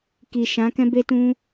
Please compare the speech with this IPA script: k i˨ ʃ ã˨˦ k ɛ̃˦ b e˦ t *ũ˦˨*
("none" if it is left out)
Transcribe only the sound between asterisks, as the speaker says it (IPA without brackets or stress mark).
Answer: ũ˦